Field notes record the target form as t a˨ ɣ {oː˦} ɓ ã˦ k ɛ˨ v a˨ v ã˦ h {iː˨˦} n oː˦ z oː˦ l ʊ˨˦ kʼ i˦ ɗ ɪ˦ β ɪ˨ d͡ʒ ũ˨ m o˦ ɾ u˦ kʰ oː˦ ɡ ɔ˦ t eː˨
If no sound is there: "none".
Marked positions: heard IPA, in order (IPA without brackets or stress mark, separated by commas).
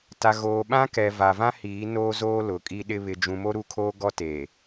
oː˨, iː˨˦